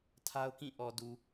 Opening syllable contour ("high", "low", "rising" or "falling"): high